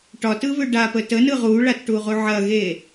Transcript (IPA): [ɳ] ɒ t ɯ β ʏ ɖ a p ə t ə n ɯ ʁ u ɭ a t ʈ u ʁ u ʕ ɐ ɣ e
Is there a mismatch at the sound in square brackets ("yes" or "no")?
yes